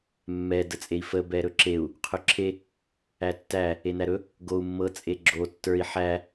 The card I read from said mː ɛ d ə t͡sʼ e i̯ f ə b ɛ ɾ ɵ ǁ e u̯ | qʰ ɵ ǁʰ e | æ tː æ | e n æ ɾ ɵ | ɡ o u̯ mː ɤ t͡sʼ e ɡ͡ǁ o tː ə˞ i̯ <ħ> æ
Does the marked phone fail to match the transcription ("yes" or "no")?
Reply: no